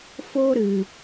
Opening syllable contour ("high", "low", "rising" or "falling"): high